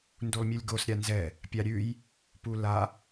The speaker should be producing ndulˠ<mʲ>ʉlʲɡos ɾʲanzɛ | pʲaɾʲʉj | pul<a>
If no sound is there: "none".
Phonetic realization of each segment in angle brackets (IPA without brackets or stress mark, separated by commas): mʲ, a